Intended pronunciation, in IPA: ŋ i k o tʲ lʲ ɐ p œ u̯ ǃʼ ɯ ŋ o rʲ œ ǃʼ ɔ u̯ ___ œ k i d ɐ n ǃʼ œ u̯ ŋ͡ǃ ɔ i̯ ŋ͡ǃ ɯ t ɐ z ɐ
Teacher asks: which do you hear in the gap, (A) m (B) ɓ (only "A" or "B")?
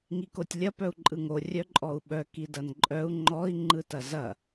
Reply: B